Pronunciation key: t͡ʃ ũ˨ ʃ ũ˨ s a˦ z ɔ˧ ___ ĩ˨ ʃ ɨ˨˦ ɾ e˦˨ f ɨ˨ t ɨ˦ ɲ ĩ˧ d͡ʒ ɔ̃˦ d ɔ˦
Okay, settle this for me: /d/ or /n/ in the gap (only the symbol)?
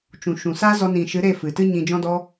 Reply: n